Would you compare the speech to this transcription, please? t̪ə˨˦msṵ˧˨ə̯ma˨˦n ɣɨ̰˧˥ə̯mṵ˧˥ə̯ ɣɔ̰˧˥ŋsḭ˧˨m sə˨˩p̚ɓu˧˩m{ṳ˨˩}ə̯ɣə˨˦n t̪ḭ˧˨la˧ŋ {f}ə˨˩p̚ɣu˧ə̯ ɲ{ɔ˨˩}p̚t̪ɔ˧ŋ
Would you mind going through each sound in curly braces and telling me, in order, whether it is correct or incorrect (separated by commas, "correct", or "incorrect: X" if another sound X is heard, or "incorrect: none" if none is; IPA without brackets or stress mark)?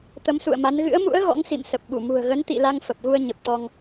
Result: correct, correct, incorrect: ə˨˩